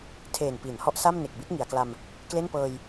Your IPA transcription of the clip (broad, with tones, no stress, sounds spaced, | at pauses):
tʰ eː˨˩ n p i˩˦ n h ɔ˦˥ ʔ s a˥˩ m n e˨˩ k̚ b i˦˥ t̚ ŋ i˩˦ a̯ k l a˧ m | k l e˥˩ n p ɤː˧ j